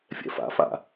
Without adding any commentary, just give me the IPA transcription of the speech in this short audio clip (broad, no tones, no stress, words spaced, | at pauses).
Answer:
fʲɛ̰fa̰fa̰